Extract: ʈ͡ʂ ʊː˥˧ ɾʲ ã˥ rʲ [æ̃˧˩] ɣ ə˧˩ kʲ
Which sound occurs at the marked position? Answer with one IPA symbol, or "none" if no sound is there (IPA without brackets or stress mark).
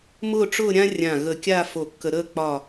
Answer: ã˧˩